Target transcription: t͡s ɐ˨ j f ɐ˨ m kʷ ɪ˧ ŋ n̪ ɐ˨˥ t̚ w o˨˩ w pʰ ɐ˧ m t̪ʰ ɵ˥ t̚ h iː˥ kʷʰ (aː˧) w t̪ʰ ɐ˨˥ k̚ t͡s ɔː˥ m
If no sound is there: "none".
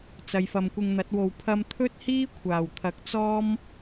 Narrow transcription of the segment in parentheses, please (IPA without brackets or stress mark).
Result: aː˨˩